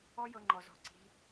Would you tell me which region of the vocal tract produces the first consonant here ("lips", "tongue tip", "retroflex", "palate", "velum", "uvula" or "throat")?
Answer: palate